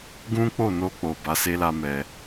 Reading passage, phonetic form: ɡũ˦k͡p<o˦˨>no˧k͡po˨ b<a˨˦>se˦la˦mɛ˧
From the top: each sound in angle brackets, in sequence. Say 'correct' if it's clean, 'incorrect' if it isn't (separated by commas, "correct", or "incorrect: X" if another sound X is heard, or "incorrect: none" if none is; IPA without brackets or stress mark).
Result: correct, correct